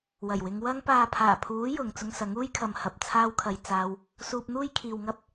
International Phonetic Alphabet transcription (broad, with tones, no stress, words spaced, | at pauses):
wɐ˨˩jwɪ˨˧ŋ wɐ˧ŋpaː˨ pʰaː˨˩pʰuː˨˥ jʊ˨ŋ t͡sʊ˧ŋsɐ˨˥ŋuː˥jkʰɐ˨m hɐ˨p̚ t͡sʰaː˧wkʰɐ˨j t͡saː˧w | suː˧p̚n̪uː˥jkʰiː˨wŋɐ˥p̚